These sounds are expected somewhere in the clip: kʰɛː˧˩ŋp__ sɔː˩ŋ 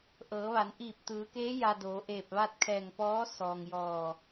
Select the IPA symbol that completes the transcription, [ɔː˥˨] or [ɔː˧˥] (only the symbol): ɔː˧˥